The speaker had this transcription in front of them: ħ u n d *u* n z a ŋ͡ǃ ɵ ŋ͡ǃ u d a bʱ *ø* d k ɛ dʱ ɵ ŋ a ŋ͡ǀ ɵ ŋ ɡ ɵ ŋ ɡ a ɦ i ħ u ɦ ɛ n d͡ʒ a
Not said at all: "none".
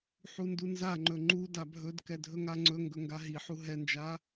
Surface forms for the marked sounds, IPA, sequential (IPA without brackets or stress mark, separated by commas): u, ɵ